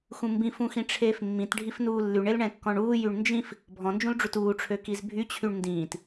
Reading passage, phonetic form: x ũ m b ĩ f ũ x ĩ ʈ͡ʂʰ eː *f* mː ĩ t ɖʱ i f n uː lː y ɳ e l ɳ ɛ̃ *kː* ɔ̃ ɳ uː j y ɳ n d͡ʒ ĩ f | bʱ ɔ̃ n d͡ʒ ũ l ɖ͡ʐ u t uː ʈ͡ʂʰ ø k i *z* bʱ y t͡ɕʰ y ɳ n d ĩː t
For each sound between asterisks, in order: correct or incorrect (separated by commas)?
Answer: correct, correct, correct